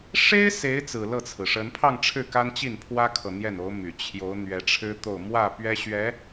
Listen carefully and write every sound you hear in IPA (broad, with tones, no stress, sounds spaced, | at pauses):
ʂ e˥ ɪ̯ s e˧˥ ɪ̯ t͡s ɹ̩˨˩ l ɤ˥˩ t͡sʰ ɹ̩˩ ʂ ə˧˥ n pʰ ɑ˥˧ ŋ ʈ͡ʂʰ ɻ̩˥˩ k a˥ n t͡ɕ i˥˩ n pʰ w ä˥ kʰ ɤ˨ n̪ j ɛ˥˩ n o˧˥ ʊ̯ m y˨˩ t͡ɕʰ j o˧˥ ʊ̯ n̪ ɥ ɛ˧˥ ʈ͡ʂʰ ɻ̩˥ t̪ o˥˧ ʊ̯ m w ä˥˩ p ɥ ɛ˥ ɕ ɥ ɛ˧˥